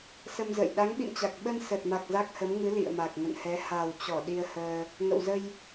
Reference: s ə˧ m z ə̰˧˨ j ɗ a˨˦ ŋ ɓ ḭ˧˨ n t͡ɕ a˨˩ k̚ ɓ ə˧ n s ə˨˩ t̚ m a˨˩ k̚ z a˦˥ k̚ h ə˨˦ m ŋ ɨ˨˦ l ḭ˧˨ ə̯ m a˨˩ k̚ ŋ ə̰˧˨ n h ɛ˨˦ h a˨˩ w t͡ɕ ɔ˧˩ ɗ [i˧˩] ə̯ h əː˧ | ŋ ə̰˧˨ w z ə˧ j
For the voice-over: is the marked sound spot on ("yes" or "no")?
no